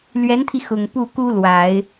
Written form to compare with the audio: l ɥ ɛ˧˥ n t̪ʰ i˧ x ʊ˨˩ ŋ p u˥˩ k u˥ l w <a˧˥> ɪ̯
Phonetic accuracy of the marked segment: incorrect: a˨˩˦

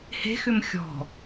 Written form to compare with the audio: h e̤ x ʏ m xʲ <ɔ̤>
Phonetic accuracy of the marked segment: correct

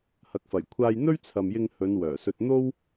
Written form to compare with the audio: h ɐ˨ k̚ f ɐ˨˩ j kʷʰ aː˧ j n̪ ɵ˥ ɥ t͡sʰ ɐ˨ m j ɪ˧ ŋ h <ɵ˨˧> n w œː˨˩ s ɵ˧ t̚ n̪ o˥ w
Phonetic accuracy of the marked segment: correct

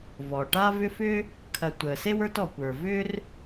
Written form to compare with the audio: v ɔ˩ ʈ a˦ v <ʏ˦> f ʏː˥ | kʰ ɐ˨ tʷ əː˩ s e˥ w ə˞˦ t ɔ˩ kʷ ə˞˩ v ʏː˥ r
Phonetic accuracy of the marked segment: correct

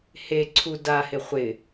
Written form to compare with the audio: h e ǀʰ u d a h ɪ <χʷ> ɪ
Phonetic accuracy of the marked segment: correct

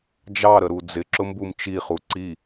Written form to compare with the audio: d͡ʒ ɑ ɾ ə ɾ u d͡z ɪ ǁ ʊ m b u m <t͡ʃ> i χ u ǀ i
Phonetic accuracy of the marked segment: correct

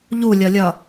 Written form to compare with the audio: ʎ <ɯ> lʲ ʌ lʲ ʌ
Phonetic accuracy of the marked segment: incorrect: u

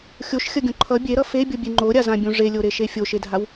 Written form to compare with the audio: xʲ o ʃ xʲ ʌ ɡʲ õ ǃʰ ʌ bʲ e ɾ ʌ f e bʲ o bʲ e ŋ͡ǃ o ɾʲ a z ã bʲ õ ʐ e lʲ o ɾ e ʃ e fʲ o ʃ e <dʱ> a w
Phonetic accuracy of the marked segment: correct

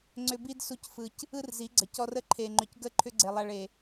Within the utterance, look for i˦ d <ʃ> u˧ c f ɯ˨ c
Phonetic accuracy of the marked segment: incorrect: s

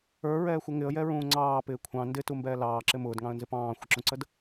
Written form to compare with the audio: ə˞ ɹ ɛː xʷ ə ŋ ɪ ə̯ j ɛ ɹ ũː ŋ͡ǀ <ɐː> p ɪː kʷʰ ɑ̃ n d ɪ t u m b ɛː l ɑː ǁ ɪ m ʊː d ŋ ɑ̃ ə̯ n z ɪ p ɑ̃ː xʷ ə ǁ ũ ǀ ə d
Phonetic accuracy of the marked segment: incorrect: ɑː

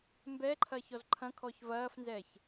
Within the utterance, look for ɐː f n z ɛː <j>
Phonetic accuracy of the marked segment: incorrect: ç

